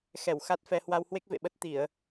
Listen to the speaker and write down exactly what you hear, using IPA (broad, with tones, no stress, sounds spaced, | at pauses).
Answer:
x ɛ˧˩ w x a˦˥ t̚ f ɛ˧ h w a˧ w h w e˦˥ k̚ v ḛ˧˨ ɓ ə˦˥ t̚ t̪ i˧˩˨ ə̯